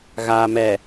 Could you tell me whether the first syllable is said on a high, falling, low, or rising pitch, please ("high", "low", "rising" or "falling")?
low